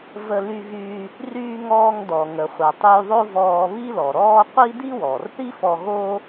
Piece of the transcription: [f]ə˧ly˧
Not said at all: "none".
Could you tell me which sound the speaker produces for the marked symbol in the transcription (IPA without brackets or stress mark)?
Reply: v